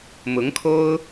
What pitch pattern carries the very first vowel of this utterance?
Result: rising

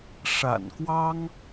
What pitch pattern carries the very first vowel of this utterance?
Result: low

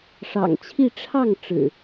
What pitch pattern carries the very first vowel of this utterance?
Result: low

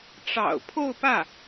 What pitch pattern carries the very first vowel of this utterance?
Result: low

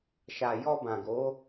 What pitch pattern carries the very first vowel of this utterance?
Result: low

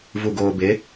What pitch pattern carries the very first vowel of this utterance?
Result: low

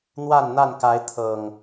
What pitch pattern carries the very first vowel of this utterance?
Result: falling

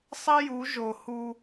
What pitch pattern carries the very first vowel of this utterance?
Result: high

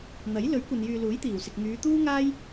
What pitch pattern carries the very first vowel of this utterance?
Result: rising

